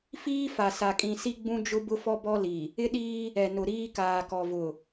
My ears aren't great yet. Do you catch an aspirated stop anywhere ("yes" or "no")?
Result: no